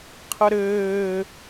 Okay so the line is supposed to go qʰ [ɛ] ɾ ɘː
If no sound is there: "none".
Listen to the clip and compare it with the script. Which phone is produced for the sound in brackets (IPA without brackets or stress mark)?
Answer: ə